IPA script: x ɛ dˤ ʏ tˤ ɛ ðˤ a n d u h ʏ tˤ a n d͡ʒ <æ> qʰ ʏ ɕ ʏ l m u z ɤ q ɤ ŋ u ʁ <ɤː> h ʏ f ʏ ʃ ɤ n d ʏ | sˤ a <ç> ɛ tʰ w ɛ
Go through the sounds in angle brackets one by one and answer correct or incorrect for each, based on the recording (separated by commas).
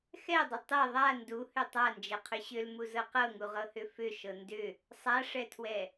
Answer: incorrect, incorrect, incorrect